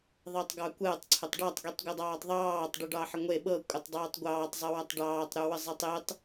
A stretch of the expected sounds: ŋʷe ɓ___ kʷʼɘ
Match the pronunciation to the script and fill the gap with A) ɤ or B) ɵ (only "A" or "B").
A